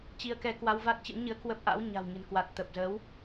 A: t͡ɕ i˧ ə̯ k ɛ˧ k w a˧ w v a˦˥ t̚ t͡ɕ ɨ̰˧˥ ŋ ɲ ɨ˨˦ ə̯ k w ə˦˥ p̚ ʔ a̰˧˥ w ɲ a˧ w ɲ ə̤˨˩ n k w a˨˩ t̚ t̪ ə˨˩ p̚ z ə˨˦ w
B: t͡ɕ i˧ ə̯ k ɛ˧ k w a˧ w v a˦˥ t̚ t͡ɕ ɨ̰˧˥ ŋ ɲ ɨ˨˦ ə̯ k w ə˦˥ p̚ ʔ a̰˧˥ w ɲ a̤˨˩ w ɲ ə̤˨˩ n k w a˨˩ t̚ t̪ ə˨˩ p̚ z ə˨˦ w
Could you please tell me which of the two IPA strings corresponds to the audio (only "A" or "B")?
B